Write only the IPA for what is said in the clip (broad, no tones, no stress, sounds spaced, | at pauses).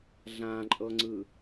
ɮ ã ǃʼ ɤ ŋ͡ǀ ɯ